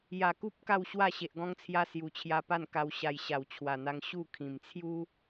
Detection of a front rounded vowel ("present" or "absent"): absent